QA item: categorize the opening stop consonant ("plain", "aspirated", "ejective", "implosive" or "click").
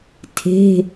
aspirated